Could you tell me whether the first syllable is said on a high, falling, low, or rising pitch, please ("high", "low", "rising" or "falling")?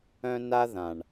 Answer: high